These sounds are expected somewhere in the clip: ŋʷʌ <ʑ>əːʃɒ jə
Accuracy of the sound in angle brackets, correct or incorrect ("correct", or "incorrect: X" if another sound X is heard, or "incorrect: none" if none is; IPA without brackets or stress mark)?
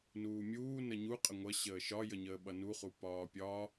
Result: incorrect: ɕ